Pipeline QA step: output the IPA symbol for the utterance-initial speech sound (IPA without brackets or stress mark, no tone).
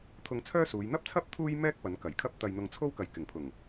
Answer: t̪ʰ